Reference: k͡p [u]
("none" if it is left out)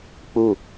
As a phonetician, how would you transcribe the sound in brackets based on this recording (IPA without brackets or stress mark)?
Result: u